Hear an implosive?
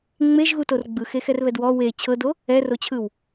no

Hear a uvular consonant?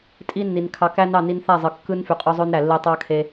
yes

